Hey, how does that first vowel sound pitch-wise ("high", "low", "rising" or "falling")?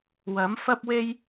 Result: rising